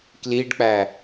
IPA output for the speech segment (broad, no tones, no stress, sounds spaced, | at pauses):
k l i ɖ k͡p æ